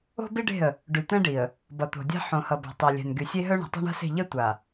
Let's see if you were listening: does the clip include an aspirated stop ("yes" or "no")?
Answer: no